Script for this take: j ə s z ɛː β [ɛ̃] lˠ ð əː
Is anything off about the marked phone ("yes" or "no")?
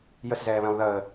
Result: no